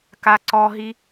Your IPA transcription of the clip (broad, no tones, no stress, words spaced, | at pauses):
kaǀɔɦi